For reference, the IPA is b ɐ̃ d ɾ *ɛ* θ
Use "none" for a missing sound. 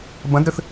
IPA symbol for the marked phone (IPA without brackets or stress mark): ɘ